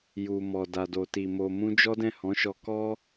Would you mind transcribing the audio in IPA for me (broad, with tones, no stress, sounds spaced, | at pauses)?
j u˨ m ɔ˨ d a˨ d o˨ t i˨ m o˨ m ũ˧ d͡ʒ ɔ˦ d ɛ̃˦˨ h ɔ̃˨˦ ʃ ɔ˧ k ɔ˦